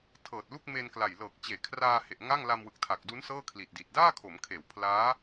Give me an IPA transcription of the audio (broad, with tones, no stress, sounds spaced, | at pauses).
tʰ ɤː˨˩ t̚ l u˥˩ k̚ m e˧ n k l a˨˩ j l ɤː˨˩ k̚ t͡ɕ eː˩˦ kʰ r aː˧ h e˨˩ ʔ ŋ a˥˩ ŋ l a˧ m w ɯ˨˩ k̚ tʰ a˨˩ k̚ d u˦˥ n s ɤː˥˩ kʰ l i˨˩ t̚ d i˨˩ t̚ d aː˥˩ kʰ o˩˦ m kʰ eː˩˦ w pʰ l aː˦˥